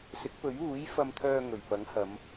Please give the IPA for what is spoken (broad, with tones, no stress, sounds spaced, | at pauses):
s ɪ˨˥ k̚ p ɵ˨˥ ɥ uː˨˥ j f ɐ˧ m t̪ʰ œː˧ ŋ ɵ˨˩ ɥ p ɐ˨˥ ŋ h ɐ˨˧ m